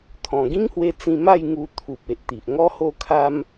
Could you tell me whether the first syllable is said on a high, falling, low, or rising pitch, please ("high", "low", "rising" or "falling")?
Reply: low